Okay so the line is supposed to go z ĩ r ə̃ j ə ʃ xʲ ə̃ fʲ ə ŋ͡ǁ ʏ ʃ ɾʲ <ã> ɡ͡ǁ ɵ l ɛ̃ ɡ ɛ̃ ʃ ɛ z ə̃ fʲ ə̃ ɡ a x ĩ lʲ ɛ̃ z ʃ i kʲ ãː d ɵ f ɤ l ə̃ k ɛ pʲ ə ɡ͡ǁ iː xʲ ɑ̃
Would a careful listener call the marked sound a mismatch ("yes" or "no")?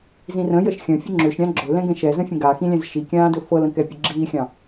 no